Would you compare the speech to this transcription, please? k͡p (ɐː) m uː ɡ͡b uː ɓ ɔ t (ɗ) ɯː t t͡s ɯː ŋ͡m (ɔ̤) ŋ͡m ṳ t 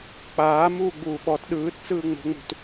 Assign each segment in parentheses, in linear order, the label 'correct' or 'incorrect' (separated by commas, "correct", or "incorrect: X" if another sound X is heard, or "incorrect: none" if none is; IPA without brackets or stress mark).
incorrect: aː, correct, incorrect: o̤